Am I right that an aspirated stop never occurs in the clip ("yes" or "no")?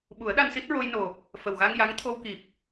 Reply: no